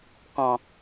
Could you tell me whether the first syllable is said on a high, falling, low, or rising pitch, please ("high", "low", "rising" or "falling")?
low